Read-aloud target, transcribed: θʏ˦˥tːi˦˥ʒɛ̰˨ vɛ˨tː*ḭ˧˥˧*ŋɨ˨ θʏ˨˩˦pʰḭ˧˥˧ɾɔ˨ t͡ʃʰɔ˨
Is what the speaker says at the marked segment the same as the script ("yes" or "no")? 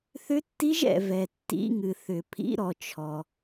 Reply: yes